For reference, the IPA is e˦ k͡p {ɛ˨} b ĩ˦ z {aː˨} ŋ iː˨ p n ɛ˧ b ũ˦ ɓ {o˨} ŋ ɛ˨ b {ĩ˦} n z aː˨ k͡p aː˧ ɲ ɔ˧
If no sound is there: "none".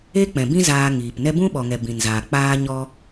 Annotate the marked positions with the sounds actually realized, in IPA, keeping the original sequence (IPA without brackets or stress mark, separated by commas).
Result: ɛ̃˨, aː˧, ɔ˨, ĩ˨